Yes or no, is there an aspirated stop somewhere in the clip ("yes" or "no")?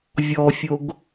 no